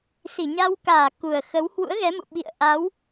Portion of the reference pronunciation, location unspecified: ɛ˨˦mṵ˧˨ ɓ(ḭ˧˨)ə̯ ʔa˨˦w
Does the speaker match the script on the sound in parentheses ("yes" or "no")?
yes